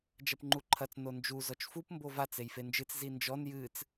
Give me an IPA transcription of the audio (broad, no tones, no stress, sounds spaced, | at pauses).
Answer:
d͡ʒ ɐ p ŋ͡ǃ u ǃʰ ɐ t͡s n o n d͡ʒ u z ɔ t͡ʃ f u p m b o v a t͡s e j f e n d͡ʒ ɨ t͡s z i n d͡ʒ ɔ n j ɨ t͡s